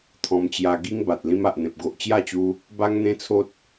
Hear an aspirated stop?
yes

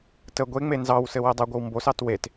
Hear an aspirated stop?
no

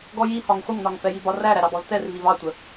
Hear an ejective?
no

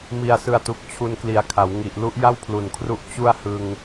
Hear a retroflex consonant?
no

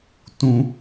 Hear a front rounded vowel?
no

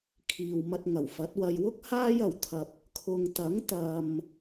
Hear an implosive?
no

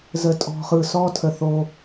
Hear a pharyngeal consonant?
no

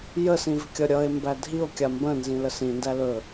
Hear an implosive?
no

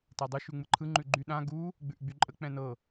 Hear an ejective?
yes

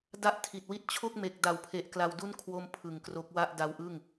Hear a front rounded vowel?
no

